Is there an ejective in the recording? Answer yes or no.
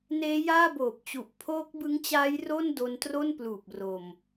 no